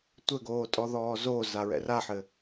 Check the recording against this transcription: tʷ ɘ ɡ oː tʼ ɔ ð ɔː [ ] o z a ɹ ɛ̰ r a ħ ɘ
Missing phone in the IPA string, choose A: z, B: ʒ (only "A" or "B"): A